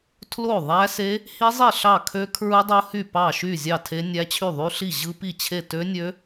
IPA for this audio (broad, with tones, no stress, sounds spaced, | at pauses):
tʰ l o˥˩ ðˤ æ˦˥ s e˦˥ | h i˦˥ zˤ i˥˩ ɬ ɑ˥˩ kʰ ø˦˥ kʰ ɹ ɯ˦˥ dˤ o˦˥ h y˥˩ p ɑ˥˩ ʃ y˥˩ zʲ ɑ˥˩ tʰ e˦˥ nʲ æ˦˥ t͡ɕʰ y˥˩ ðˤ y˦˥ ɬ i˥˩ ʑ ɯ˦˥ p i˥˩ t͡ɕʰ e˥˩ t ø˦˥ nʲ ø˦˥